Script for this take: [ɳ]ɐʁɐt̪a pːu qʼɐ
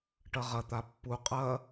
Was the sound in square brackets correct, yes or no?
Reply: no